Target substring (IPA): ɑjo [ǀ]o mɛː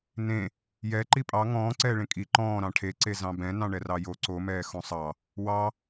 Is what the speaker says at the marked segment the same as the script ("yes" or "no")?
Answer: yes